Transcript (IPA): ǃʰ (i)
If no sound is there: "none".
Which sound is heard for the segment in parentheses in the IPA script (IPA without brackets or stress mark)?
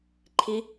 i